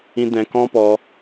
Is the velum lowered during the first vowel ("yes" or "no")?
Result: yes